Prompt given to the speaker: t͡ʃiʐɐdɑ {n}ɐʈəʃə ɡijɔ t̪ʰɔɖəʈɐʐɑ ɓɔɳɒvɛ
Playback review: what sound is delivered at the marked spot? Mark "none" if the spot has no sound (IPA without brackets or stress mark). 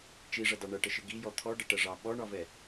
ɳ